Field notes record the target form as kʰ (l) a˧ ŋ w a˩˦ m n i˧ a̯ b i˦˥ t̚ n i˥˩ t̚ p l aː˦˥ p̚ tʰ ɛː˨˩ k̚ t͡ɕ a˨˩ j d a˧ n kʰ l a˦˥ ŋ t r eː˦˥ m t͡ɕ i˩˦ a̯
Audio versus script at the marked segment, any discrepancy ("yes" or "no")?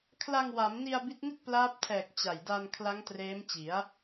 no